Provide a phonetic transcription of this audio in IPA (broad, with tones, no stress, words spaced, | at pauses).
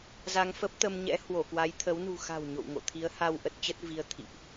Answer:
za˧ŋfə˦˥p̚t̪ə˧mɲɛ̰˧˥ hwo˧˩kwa˨˦jt̪ʰə˨˦w nṳ˨˩xa̤˨˩w ɲo̰˧˨w ŋo̰˧˨t̪ʰi˨˦ə̯ ha˧w ʔə˦˥t̚t͡ɕə˦˥t̚vi˧ə̯ t̪ʰḭ˧˨ʔ